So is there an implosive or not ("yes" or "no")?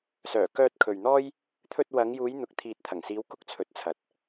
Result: no